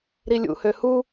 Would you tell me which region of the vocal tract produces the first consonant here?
tongue tip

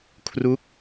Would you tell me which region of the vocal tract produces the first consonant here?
velum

